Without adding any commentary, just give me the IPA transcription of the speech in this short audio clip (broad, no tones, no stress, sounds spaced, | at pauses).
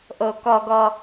ʔ o k ɔ ɡ ɔ